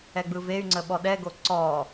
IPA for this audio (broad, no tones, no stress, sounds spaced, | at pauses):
ɛ ɡ͡b ɯ v e y̯ ŋ͡ǀ ə ɓ ɔ ɗ ɛ ɡ o ǀ ɔ